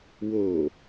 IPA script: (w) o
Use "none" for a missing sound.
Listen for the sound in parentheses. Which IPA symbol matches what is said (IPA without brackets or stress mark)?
w